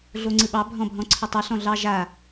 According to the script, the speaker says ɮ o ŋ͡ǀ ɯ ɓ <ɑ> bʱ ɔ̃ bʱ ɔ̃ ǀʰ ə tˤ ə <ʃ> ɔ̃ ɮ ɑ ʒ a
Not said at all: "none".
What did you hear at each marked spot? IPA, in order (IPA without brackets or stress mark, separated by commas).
ɑ, ɬ